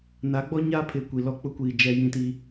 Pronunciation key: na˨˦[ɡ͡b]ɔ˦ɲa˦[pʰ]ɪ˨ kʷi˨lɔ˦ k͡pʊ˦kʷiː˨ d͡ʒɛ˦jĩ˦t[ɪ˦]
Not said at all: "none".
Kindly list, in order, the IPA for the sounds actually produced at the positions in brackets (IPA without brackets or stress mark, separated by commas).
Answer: ɡ͡b, pʰ, i˦